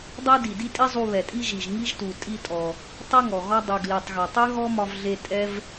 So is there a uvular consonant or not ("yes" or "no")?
no